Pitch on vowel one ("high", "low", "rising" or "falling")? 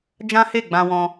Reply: high